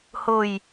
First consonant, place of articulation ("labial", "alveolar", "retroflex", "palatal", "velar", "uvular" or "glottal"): glottal